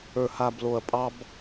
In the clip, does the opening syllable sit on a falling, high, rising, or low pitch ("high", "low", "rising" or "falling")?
low